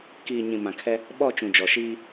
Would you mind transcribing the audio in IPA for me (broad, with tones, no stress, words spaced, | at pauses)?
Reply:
kiː˨ɲĩ˨ mã˨kʰɛ˦ | ɓɔ˦˨t͡ʃũ˨ d͡ʒɔ˨ʃiː˦